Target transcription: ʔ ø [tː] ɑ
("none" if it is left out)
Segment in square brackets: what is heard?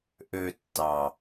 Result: tː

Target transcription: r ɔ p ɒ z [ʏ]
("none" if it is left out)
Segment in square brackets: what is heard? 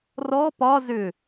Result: ʏ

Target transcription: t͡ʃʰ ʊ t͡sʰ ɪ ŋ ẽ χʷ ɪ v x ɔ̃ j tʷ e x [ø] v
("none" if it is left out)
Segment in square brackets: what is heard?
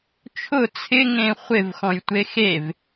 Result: e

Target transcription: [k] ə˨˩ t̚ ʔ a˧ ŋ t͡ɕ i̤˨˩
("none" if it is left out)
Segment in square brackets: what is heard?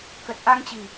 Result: k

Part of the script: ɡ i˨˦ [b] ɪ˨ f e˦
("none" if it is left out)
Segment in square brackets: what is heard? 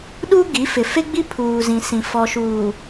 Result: f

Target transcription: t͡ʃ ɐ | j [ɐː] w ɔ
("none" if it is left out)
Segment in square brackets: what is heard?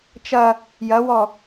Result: ɐ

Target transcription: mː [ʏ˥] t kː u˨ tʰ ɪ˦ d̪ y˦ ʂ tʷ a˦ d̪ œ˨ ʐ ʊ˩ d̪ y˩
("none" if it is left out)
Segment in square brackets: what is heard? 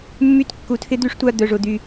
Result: y˥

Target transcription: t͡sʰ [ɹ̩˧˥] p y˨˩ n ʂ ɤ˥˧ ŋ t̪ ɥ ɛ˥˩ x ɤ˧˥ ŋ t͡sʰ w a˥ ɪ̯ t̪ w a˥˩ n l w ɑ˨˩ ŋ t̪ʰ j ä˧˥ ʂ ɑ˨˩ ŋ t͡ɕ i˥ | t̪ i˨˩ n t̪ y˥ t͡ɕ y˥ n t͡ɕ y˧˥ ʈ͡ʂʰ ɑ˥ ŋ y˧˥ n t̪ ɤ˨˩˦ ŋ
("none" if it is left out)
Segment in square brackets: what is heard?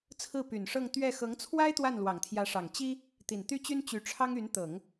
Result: ɹ̩˥˩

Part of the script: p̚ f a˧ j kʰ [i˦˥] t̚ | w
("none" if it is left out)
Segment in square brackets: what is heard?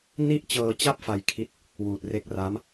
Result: i˦˥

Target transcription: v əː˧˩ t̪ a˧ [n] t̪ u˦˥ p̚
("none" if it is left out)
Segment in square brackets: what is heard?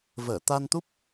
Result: n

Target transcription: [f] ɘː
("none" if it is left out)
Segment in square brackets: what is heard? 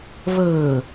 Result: v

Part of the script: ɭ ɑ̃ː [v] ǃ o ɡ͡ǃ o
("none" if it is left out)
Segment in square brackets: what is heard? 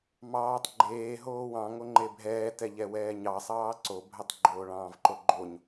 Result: v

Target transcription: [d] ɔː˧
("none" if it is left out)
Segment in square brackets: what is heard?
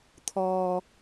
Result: t̪ʰ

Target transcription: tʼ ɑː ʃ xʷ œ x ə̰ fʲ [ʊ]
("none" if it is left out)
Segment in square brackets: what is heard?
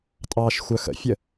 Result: ə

